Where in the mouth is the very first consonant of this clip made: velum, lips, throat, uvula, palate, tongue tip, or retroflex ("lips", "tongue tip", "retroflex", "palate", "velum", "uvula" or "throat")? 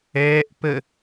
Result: throat